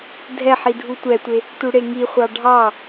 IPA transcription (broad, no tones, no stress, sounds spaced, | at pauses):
dʱ ɛ ħ i dʱ u tʷ ɛ tʷ e | t u ɽ e ŋ i χʷ ɑ ɖʱ ɑ